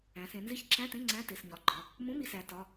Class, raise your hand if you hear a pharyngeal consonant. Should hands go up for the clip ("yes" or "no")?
no